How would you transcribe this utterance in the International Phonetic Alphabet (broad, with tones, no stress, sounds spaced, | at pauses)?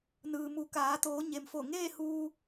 n ɯː˩ m u˩˧ k aː˩˧ t̪ oː˩˧ ɲ e˩ m f o˧˩ ŋ eː˥˨ h uː˧